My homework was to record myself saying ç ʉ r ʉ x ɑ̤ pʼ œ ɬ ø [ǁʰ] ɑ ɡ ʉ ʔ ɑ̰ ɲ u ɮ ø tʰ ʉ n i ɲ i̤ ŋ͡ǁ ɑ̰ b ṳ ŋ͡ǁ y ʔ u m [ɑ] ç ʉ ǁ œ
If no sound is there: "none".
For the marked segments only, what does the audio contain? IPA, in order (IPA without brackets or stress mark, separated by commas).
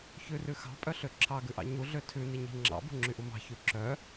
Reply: ǁʰ, ɑ̤